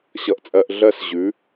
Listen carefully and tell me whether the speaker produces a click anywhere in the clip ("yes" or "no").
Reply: no